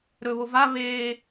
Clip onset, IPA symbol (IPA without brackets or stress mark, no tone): ɾ